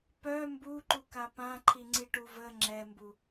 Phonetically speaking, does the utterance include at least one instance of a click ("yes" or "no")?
yes